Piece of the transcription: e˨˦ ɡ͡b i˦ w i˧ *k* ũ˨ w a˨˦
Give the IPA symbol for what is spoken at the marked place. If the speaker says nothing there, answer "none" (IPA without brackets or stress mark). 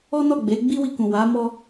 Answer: k